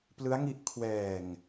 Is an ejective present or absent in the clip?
absent